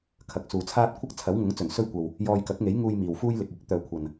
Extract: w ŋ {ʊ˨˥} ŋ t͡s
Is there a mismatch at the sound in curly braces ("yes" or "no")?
no